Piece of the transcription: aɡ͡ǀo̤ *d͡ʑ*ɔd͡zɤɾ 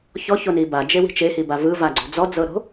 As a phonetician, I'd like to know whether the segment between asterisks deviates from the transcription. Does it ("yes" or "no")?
yes